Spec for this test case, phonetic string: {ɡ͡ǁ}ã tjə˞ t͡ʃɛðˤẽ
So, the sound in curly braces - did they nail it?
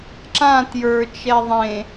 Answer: no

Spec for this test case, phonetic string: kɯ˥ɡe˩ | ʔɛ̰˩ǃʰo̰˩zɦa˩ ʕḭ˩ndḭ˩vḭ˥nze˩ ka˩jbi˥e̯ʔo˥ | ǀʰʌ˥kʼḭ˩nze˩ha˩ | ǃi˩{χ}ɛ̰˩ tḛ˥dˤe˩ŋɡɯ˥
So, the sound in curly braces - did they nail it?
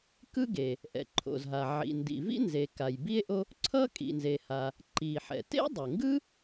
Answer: no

